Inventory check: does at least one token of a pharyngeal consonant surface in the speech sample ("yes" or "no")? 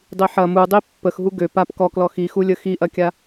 yes